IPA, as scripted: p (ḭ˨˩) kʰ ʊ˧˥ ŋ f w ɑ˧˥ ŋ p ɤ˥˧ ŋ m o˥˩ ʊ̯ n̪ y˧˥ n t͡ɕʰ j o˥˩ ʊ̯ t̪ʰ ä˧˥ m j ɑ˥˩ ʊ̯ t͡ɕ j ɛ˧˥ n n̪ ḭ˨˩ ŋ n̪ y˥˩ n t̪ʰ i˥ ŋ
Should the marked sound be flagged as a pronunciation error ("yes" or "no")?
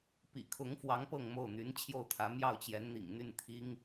no